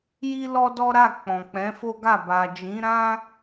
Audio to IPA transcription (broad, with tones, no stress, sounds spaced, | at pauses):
j i˦ l ɔ˦ d ɔ˦ ɾ a˦˨ k͡p ɔ̃˨ k͡p ɛ̃˨˦ f o˦ ɡ a˦˨ b a˨ d͡ʒ ĩ˨˦ ɾ ã˦